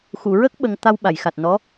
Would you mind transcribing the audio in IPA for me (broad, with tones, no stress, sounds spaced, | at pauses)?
x u˨˩˨ ɹ ə˦˥ k̚ ɓ ə˧ ŋ t̪ a˧ w ɓ a˨˩˨ j x a˨˩ t̚ n ɔ˧˥